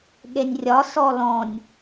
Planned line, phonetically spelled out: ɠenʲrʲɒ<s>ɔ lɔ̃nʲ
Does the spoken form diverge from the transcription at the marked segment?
no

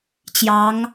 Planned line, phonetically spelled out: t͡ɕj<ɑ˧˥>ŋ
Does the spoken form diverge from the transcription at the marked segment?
no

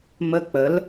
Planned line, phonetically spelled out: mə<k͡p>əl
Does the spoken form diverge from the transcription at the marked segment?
no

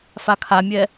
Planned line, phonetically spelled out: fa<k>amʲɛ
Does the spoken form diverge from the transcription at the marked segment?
yes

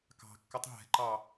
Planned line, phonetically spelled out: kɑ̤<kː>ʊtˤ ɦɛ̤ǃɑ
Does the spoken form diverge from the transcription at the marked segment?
no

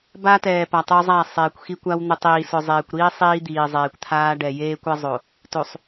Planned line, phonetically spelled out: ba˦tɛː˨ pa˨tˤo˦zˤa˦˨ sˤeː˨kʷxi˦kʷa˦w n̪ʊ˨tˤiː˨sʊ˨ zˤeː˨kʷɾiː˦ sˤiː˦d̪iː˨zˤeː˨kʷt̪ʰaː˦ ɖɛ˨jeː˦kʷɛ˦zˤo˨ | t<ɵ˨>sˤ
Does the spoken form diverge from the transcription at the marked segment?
yes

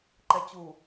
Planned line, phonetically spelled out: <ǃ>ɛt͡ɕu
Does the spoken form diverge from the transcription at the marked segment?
no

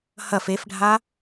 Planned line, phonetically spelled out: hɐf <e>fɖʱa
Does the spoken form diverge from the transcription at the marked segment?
no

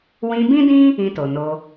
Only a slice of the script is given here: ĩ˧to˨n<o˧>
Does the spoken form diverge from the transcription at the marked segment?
no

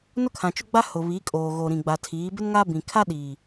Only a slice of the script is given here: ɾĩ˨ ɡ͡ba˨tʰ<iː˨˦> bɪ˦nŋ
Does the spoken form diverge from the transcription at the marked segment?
no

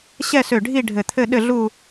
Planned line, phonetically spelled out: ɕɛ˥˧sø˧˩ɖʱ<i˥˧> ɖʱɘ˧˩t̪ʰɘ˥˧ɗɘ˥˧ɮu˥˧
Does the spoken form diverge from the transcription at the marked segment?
no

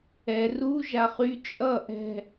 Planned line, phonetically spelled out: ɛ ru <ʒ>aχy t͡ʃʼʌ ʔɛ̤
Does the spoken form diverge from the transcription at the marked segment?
no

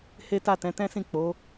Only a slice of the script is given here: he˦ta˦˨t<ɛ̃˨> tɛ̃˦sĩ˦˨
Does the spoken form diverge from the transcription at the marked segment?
yes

